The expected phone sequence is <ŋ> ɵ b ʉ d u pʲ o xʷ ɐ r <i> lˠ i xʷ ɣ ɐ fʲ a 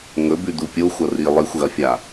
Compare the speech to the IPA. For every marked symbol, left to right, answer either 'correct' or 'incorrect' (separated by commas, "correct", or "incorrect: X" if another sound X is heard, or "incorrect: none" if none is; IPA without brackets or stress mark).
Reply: correct, correct